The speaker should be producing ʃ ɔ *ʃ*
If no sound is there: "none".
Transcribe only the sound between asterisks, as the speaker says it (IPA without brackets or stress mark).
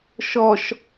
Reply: ʃ